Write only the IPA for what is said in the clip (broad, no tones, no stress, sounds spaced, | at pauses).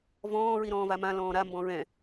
v ɔ̃ː ɹ i ɾ ɔ̃ː v a m ã l ɔ̃ː ɾ a m b ɔ̃ ɹ ɛ̃